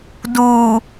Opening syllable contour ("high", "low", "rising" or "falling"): low